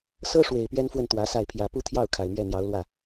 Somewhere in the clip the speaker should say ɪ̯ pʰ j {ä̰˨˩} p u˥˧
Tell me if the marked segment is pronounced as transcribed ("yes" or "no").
no